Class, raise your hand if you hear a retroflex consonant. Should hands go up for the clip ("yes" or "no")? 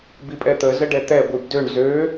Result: yes